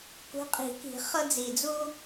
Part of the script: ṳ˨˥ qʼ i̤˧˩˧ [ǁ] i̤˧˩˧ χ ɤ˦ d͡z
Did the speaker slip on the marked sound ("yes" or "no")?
yes